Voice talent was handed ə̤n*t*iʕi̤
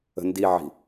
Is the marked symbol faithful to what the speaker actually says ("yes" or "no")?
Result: no